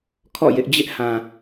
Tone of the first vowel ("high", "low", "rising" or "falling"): falling